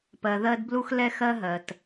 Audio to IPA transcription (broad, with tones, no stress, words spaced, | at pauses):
pɜ˨ðɜ˦d blu˦xlɛ˦xɜ˦ɦɜ˨t